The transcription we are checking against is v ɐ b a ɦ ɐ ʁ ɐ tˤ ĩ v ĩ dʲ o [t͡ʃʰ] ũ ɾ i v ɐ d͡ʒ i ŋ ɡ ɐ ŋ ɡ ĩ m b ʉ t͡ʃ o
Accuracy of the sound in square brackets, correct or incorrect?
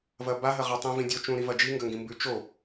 incorrect